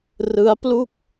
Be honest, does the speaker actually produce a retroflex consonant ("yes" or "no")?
no